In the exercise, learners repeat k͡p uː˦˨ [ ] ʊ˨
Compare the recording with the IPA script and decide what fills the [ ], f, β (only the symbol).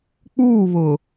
β